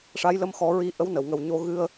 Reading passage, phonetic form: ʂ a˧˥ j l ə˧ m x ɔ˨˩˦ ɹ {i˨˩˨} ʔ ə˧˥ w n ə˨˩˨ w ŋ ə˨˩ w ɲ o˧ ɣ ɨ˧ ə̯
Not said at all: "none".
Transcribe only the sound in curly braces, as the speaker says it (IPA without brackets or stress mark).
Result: i˧